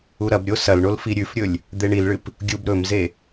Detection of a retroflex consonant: present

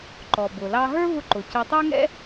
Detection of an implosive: absent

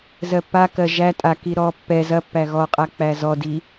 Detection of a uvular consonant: present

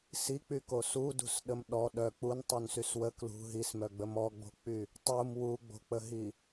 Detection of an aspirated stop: absent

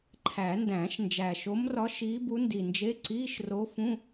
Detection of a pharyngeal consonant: absent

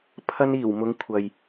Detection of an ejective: absent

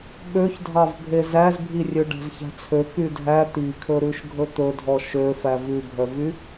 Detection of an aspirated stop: present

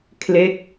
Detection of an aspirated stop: present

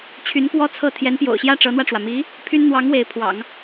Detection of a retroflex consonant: present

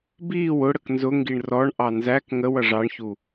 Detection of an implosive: absent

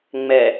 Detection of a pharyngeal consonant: absent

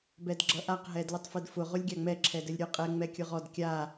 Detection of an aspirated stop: present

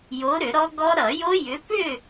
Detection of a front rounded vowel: present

